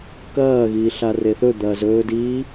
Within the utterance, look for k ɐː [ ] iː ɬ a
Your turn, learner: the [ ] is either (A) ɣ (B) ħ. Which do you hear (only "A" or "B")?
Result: A